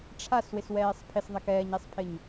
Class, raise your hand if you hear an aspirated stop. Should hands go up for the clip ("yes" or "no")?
yes